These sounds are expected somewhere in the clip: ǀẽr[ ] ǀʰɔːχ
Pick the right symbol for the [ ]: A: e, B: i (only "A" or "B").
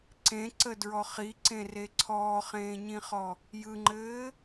A